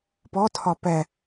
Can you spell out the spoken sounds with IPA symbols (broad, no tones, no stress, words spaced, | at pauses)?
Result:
pɔtʰɒ pɛ